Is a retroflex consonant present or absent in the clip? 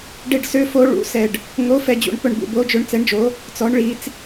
present